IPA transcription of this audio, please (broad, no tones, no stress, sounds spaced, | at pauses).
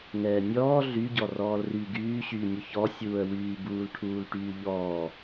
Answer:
ŋ ɛː nʲ ɔː ɮ y ɟ ɔ r ɔː l r y ɡ yː ɕ yː nʲ u ç ɔ sʲ uː ə̯ w yː b uː l ʈʰ uː l ʈ yː ʎ ɔː